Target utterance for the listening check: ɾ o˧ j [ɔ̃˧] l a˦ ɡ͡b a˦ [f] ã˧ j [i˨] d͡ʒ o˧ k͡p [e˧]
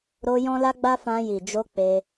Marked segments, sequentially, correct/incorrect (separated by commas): incorrect, correct, correct, correct